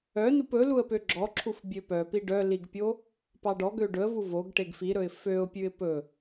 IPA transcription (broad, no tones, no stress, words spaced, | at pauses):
œnup ɵ luə̯pøɡ͡ǁɔǁʰuf bʲøpœpi ɖœ liɡpʲo | pɑɖɔɡø ɖɵə̯vu voɡ ʈeɡfiɾɵɪ̯ føʊ̯pʲʉɪ̯ pɵ